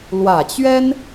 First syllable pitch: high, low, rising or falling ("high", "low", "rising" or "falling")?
low